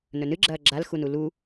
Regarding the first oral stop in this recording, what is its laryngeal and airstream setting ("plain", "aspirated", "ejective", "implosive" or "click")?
click